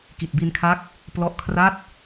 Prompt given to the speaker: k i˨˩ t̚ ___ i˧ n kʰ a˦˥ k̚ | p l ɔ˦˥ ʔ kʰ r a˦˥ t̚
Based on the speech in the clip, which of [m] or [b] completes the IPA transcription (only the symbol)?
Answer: b